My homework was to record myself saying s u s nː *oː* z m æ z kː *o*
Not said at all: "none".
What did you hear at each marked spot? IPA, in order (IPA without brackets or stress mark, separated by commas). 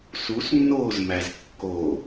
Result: oː, o